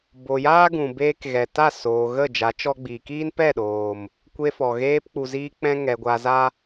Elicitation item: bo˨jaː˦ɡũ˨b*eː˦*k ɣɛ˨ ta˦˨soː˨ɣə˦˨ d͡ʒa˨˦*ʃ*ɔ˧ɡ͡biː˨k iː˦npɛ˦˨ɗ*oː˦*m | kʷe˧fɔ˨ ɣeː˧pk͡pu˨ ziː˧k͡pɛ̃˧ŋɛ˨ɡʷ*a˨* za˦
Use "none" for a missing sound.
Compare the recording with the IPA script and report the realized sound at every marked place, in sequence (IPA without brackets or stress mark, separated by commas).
eː˧, t͡ʃ, oː˨, a˨